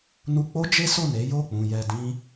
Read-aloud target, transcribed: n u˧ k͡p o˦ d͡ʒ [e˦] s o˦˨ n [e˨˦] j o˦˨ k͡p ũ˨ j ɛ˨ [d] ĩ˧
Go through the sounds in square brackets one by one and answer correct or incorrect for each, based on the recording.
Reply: correct, correct, correct

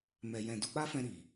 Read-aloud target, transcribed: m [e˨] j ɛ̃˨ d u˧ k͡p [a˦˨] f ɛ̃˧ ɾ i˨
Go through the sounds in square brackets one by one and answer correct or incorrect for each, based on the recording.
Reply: incorrect, incorrect

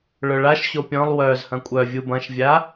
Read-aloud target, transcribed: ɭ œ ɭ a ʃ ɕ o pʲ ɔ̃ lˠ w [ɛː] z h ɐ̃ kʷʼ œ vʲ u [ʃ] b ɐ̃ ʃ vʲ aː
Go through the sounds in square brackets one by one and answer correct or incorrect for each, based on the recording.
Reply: incorrect, incorrect

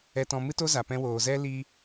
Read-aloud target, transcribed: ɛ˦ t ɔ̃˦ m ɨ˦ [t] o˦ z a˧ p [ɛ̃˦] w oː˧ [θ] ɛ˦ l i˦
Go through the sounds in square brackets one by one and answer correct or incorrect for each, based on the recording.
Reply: correct, correct, incorrect

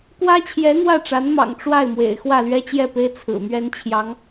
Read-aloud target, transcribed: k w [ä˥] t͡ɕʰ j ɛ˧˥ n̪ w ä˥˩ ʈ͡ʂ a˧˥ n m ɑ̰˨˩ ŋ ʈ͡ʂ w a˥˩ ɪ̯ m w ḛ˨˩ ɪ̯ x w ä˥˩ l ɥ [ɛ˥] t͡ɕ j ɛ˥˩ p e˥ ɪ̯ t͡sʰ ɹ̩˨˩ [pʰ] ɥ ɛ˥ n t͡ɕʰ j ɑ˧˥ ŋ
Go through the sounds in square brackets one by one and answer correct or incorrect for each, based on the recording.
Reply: correct, correct, incorrect

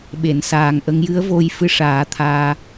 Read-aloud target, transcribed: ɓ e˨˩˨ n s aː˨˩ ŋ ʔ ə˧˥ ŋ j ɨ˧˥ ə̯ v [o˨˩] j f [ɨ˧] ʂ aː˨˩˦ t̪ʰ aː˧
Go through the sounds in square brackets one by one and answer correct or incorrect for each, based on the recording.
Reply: incorrect, correct

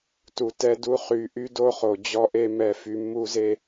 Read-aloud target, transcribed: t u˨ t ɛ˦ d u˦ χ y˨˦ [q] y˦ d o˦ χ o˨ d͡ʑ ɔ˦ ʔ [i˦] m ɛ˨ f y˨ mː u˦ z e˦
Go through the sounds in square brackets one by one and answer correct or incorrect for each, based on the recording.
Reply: incorrect, incorrect

